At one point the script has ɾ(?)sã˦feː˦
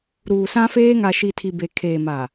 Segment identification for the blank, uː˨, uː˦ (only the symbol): uː˨